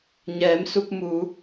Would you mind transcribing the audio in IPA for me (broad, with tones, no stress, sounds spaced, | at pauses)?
ɲ ɛː˩˧ m s u˧ p̚ m u˩˧